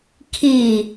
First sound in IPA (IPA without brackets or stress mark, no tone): kʰ